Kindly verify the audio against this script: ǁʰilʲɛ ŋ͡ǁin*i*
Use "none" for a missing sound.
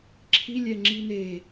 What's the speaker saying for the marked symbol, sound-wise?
e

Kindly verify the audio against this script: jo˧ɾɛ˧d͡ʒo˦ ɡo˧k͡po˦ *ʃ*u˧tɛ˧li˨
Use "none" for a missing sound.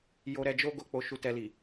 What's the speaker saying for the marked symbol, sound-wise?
ʃ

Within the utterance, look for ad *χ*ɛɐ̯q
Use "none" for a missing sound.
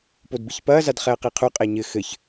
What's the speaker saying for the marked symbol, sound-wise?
χ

